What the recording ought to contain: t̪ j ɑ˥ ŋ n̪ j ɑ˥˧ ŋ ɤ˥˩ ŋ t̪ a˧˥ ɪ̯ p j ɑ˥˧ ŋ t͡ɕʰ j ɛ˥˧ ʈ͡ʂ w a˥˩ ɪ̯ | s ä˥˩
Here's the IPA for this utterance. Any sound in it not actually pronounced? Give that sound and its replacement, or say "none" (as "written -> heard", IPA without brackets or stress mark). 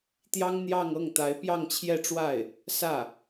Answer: none